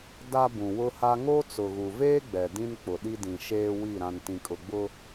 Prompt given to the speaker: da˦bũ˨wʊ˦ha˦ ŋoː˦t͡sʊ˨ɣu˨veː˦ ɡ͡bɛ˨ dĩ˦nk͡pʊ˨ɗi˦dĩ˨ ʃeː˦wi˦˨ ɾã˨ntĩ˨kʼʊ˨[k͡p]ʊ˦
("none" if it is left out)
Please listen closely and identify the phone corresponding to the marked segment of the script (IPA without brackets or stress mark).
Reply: ɡ͡b